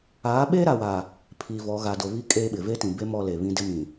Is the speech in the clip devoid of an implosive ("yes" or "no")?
no